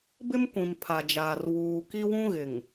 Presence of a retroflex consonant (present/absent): absent